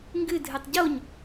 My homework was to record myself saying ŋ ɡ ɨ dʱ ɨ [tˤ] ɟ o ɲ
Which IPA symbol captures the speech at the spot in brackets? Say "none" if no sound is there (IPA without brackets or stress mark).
tˤ